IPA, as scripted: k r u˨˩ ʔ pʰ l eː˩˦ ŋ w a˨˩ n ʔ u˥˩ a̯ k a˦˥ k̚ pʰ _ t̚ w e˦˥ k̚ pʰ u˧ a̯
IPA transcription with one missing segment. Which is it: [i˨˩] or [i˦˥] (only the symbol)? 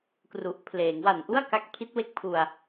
i˦˥